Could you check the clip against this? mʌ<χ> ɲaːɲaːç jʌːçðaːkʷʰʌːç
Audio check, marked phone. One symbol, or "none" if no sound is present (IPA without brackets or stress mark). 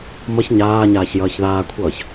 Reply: ç